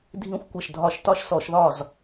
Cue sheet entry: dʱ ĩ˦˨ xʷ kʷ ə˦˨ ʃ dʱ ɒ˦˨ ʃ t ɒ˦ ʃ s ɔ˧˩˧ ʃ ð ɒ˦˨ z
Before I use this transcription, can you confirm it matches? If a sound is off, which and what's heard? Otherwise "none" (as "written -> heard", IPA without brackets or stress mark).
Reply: none